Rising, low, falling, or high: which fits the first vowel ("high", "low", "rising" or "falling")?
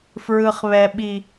low